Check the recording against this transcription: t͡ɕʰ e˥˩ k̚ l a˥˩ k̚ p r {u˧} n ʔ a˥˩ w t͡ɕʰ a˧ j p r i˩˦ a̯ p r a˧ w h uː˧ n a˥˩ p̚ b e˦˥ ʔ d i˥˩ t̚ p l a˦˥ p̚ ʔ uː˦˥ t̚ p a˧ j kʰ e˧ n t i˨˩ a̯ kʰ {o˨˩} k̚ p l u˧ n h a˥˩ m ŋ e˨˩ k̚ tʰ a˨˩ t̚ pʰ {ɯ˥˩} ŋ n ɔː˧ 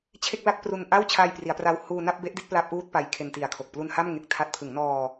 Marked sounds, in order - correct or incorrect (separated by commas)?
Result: correct, correct, incorrect